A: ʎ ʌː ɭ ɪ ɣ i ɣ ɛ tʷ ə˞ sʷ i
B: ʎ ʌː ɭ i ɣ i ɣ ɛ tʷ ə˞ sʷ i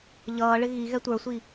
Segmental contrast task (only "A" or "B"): A